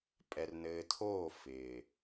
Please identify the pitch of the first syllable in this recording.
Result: low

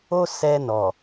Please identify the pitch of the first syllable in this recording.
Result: high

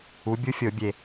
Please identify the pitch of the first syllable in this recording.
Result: rising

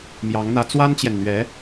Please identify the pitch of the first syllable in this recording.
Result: rising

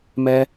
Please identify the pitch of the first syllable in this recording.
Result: high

